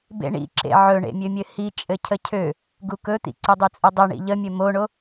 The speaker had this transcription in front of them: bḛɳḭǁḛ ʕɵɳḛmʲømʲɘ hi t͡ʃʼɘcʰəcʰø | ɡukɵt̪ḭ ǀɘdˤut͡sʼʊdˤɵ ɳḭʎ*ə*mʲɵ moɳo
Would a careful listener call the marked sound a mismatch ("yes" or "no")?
no